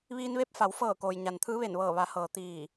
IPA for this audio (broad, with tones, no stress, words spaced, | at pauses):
ʋiː˧nʋe˧˥p̚fa˩˧wfɤː˧˩ koː˩jɲa˩n t̪ʰɯː˧˥ʋe˧˩nʋɤː˧˩ ʋa˩˧hɤː˩ t̪iː˧˩